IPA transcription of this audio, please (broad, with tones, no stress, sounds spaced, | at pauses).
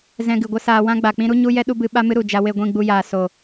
z ɛ̃˧ ɡ ɨ˨ ɡʷ ə˦ s aː˧ w ã˦ ɡ͡b a˨ k͡p ĩ˦ ɾ u˦ ɲ u˦ j ɛ˦ ɗ u˦ b ɨ˧ ɓ a˦ m ɨ˦ ɾ u˨ d͡ʒ a˧ w e˦˨ ɡʷ ĩ˦˨ ɡ͡b u˧ j aː˨ s o˨